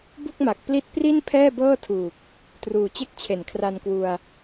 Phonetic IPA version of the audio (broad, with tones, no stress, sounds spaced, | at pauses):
b u˥˩ k̚ m a˨˩ k̚ p l i˦˥ t̚ p r i˥˩ n pʰ ɛː˥˩ b ɤː˥˩ tʰ uː˨˩ k̚ | t r uː˨˩ t͡ɕ e˥˩ k̚ t͡ɕʰ e˨˩ n kʰ r a˧ n k w u˧ a̯